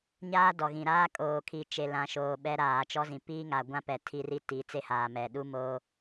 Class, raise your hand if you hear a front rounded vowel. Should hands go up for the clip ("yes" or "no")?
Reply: no